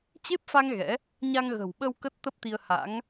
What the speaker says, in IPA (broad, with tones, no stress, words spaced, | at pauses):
t͡ɕe˦˥p̚fa˧ŋ ɣɛ̰˧˥ | ɲa˧ŋɣə̤˨˩wɓə˧w kə˦˥t̚t̪ə˦˥p̚t̪i˧ə̯ ha̰˧˥ŋ